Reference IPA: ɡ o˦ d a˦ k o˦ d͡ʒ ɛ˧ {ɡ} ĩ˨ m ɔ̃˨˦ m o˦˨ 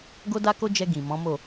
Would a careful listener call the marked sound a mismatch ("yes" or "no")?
no